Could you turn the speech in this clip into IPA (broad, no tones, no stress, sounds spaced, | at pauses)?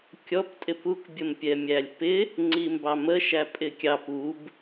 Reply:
kʲ ɔ p tʼ ɪ p u k bʲ ə m pʲ ɛ mʲ æ lʲ p ɪ | ŋ͡ǀ i m b ɑ m ə ʃ æ pʼ ɪ kʲ ɑ p u b